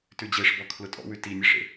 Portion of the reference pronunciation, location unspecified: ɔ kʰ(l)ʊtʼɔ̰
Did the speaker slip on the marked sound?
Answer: no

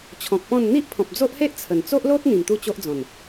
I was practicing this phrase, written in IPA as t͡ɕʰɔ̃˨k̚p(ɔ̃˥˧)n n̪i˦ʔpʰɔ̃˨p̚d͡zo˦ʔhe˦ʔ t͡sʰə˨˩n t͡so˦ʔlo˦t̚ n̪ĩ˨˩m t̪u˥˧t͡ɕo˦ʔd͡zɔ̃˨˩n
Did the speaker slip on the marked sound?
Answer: no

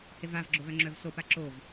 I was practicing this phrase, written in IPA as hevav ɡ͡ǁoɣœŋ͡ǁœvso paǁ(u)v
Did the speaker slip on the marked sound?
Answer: yes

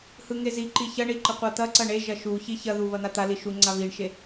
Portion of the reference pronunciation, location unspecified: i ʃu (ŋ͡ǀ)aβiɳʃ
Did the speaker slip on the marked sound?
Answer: no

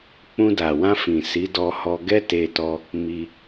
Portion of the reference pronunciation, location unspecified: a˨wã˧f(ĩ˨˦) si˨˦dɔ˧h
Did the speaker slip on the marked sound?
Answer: yes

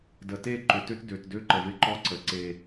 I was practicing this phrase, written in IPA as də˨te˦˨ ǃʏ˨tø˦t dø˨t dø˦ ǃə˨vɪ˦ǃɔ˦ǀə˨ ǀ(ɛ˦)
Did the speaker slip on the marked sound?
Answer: yes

